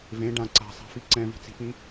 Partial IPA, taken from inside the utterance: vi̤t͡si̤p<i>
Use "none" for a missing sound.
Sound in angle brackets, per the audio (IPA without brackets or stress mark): ĩ